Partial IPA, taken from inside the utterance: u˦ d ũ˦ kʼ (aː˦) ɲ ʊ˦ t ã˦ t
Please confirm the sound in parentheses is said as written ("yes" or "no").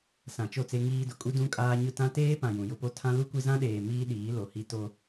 yes